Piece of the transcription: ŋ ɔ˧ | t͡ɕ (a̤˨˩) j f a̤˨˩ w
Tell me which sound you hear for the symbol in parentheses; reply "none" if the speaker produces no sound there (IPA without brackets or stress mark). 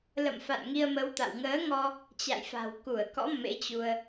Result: a̰˧˨